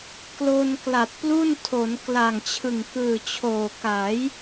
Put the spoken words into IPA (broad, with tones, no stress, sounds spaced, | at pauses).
k l o˧ n k l a˨˩ t̚ p l u˥˩ n tʰ o˩˦ n k l a˨˩ ŋ t͡ɕʰ ɯ˨˩ ŋ k ɯː˨˩ t͡ɕʰ oː˨˩ k aː˩˦ j